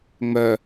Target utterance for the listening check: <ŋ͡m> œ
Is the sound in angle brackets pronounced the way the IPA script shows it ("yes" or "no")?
yes